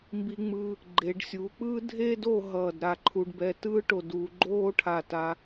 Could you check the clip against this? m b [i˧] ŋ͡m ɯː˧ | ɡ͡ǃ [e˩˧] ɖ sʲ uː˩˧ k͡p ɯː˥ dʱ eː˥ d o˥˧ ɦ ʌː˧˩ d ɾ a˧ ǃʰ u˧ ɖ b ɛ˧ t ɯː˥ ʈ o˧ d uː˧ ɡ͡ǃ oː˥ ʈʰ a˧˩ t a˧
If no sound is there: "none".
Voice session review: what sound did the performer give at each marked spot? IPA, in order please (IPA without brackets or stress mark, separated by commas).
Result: i˧, e˩˧